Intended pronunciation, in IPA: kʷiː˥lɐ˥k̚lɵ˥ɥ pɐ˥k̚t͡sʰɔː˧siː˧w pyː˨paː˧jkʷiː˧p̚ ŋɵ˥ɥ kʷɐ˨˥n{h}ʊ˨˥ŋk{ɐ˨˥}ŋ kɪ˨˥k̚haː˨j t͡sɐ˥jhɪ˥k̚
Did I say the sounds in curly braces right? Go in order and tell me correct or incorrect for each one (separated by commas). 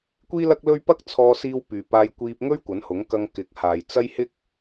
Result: correct, incorrect